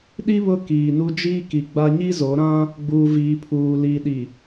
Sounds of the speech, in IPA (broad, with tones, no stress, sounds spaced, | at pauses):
ɗ i˦ β ʊ˦ k iː˨ n u˦ d͡ʒ iː˦ k i˨ ɡ͡b a˦ ɲ i˦ z o˨˦ ɾ ã˦ | ɡ͡b uː˨ v iː˨ pʰ uː˨ l i˨ ɗ i˨